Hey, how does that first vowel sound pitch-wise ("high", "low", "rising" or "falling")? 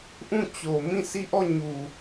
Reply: falling